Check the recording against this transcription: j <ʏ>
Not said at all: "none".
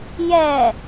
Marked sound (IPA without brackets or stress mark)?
ɛ